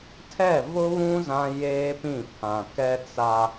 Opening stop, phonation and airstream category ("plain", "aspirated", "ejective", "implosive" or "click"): aspirated